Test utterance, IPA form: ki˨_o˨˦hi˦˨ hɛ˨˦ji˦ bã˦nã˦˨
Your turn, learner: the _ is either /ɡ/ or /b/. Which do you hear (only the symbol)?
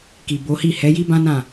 b